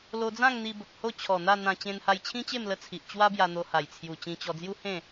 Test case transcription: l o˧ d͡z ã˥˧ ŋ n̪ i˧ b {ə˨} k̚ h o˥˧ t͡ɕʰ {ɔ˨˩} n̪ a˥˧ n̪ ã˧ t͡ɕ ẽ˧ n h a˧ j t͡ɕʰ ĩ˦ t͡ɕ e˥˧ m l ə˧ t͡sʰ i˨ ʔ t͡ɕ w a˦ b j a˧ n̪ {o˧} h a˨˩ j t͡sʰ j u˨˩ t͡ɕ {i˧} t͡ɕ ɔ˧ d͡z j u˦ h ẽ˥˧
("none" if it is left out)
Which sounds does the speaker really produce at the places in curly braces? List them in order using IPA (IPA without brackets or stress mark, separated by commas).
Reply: ə˨, ɔ˨˩, o˧, ĩ˧